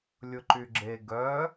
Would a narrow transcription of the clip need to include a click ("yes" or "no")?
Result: yes